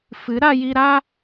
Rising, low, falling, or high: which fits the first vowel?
rising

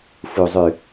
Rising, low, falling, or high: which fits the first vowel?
low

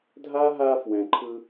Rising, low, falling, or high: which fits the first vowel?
high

